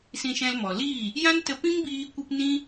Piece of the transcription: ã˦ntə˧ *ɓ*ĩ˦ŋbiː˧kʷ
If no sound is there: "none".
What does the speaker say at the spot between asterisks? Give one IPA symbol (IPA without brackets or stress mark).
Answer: p